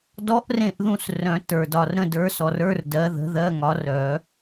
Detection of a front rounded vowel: present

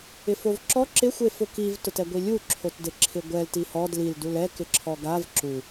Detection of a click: present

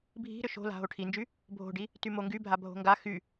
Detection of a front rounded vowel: present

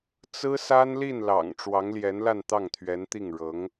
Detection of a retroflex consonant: present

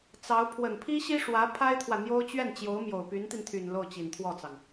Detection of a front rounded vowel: present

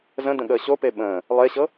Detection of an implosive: present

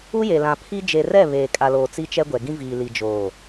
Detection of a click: absent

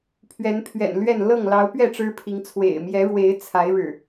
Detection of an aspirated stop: present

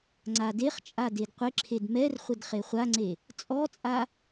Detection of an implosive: absent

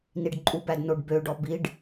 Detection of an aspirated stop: absent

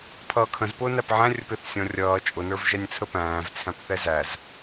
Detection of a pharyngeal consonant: present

